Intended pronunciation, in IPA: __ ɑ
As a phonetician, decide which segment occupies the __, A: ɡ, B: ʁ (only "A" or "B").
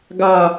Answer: A